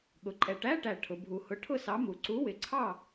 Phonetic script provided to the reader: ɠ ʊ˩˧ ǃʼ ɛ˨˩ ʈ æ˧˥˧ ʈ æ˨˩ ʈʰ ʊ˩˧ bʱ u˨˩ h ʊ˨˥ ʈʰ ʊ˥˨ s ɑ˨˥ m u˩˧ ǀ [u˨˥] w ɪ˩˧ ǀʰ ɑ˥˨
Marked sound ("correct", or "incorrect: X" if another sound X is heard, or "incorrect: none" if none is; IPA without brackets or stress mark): correct